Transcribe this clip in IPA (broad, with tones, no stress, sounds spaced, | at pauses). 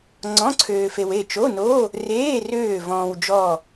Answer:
ŋ͡ǀ ɔ̃˧˥˧ ǀʰ øː˧ f e˧ w e˥˨ t͡ʃ o˧˥˧ n o˧˥˧ | r eː˧˥˧ r øː˥˨ v ɔ̃ː˧ w d͡ʒ ɔ˥˨